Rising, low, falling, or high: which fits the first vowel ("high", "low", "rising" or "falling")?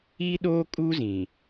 high